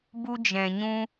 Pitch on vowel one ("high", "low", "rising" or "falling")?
high